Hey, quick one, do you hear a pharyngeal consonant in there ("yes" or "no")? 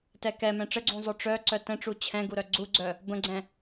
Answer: no